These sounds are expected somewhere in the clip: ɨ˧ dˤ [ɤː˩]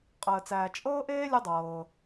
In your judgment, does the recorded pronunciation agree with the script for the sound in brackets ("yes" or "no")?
yes